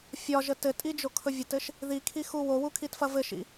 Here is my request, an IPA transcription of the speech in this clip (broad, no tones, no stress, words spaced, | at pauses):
fʲɒʒə tɘtʼid͡ʒokʰɵ vʲɐtɘʃ | ðikʰixu wowukʰitfɐ vɘʃḭ